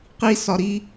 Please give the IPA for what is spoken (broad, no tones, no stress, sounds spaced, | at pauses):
q i s ɒ ɾ i